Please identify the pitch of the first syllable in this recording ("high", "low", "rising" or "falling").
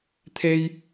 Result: high